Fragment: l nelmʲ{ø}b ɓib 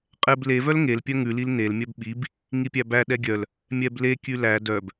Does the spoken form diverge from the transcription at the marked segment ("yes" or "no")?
yes